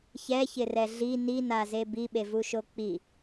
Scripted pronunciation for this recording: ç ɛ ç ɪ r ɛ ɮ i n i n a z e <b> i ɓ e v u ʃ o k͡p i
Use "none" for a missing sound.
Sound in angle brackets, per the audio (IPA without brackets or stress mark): b